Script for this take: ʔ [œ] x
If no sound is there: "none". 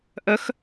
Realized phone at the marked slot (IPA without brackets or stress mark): œ